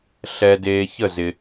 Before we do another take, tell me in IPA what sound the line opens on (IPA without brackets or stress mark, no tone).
ɬ